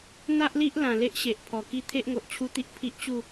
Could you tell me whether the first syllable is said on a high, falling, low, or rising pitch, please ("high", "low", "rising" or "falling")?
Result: high